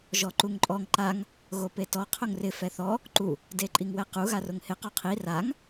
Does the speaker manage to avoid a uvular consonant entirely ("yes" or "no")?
no